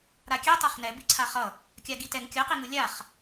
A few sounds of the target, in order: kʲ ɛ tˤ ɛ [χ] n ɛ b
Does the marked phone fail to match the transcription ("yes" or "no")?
no